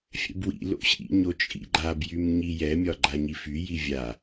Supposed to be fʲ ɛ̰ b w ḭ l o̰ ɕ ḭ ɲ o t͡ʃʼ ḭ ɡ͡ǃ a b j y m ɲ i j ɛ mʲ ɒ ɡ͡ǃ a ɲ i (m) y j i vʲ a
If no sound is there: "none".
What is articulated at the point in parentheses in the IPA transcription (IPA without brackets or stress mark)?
f